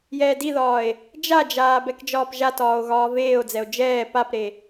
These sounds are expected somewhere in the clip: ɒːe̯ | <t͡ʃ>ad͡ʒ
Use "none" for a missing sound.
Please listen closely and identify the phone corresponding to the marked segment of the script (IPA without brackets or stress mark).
d͡ʒ